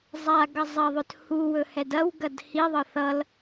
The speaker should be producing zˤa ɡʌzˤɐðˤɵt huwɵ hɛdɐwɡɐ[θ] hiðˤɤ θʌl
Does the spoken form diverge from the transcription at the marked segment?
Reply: yes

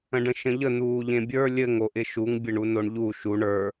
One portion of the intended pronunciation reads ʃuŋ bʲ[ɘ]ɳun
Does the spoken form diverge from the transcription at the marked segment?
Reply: no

